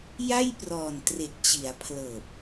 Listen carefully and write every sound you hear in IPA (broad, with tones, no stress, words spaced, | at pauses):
ja˥˩jprɔː˨˩n tre˨˩k̚t͡ɕi˩˦a̯ pʰlɤː˨˩p̚